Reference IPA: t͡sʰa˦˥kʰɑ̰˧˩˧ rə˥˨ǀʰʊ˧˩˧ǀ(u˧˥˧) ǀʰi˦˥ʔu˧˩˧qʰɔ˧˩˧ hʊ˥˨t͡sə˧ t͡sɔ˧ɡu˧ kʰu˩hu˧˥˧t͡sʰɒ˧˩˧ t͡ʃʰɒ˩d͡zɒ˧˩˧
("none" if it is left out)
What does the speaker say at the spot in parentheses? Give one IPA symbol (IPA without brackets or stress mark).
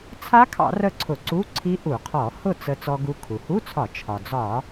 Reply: u˧˥˧